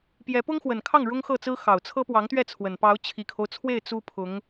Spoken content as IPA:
p j ɛ˧˥ p ʊ˥ ŋ x w ə˨˩ n kʰ ɑ˥˩ ŋ ɻ ʊ˥ ŋ x ɤ˥˩ t͡s ɹ̩˥ x ɑ˨˩ ʊ̯ t͡sʰ ɤ˥ p w ɑ˧˥ ŋ t̪ ɥ ɛ˥˩ t͡sʰ w ə˨˩ n p ɑ˧˥ ʊ̯ t͡ɕʰ i˨˩ kʰ o˦ ʊ̯ t͡sʰ w e˥˩ ɪ̯ t͡s u˥ pʰ ʊ˧˥ ŋ

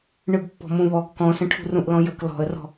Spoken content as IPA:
ɳ ɯ ɡ pː ɔ̤ m ũ β ɔ ɡ k ɔ̃ s ə̃ ʈʰ ṳ r ũ ʔ l ɔ̃ j ə k l ɔ̤ ə̯ r ɔ̤

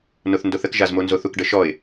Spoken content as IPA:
n o θ n d o θ ə k ʒ a z m o n z o θ u k ɖ ə ʃ ɔ ɪ̯

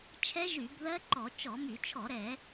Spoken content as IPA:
t͡ʃʰ ɛ˦˥ ʒ y˧˩˧ b ð ɜ˦˥ ǃ ɔ˧˩˧ t͡ʃ ɔ˧˩˧ m y˧˩˧ t͡ʃʰ ɔ˧˩˧ ɾ ɛ˧˩˧

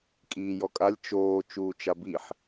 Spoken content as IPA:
kʼ iː j ɔ kʼ a lʲ t͡ʃ oː t͡ʃ uː t͡ʃ a b i ħ

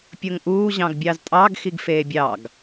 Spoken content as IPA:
pʲ o ŋ ʔ uː ʑ ɑ̃ ɡ bʲ ɑ z tʼ ɑ ɡ x i ɡ f eː bʲ ɑ ɡ

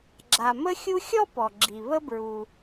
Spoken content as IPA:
ɡ͡ǁ a˨ m ə˦ xʲ u˦ xʲ ɔ˥ p ɔ˩ ɡ͡ǁ i˩ β ə˦ b ɹ u˩

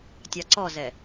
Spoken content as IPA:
tʲ ɑ ǀ ɔ z ɛ

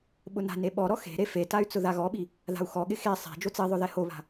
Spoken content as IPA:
ɓ ʊ n a̤ n e ɓ ɔ ɾ ɔ x e̤ ɾ e f e t a y̯ t͡s ʊ ð a ɣ ɔ ɓ i | ð a̤ u̯ x ɔ ɠ ɪ x e sˤ e̤ d͡ʒ o t͡s i ðˤ ʊ ð ɛ h o β a̤

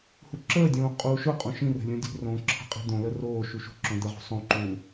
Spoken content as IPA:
h u ǁ əː dʲ õː qʼ uː ʃ ʊ qʼ õ ʃ ĩ r ə̤ lʲ õ dʲ ṳ r õː ǁʰ ə̤ qʼ i̤ d̪ õ l ə r oː ʃ u ʃ ṳ ǁ õ d̪ ə ʁ ṳ sˤ õ ǃ u

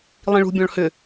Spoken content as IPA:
lˠ ĩ ɭ ṳ bʲ ɔ̃ ɭ h ʏ

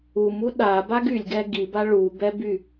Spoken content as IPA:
u m u ɗ a b a ɡ y lʲ ɡ ɛ ɡ i b a ɭ u b ɛ b y

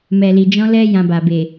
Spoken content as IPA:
m ɛ˨ l i˨ d͡ʒ ɔ̃˧ l ɛ˦ j ã˧ b a˨ b e˨

